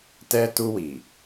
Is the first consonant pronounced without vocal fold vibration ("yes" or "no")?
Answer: yes